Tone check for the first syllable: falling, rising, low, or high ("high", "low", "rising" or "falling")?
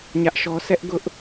high